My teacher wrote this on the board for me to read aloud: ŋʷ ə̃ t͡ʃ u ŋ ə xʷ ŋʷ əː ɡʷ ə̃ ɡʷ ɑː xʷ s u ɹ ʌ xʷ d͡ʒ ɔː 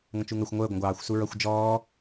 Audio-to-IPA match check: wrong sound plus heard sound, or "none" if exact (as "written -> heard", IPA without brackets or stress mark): none